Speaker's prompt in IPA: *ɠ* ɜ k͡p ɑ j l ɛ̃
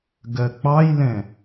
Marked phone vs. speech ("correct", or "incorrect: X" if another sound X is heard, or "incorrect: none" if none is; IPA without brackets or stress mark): incorrect: ɡ